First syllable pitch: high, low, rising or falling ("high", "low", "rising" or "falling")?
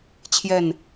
falling